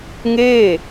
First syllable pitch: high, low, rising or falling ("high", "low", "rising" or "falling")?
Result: falling